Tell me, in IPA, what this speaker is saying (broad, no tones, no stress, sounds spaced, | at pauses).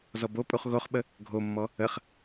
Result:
z ɔ b o pʼ u χ ɣ o χ ɓ ə | ɡʱ o mː ɔ | ə χ